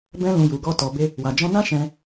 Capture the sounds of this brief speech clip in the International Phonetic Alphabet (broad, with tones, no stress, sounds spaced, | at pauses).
b ɛ̃˧ l ũ˨ j u˨ ɡ ɔ˧ t ɔ˨ b e˧ | w a˨ d͡ʒ ɔ̃˧ n ã˦ ʃ ɛ̃˧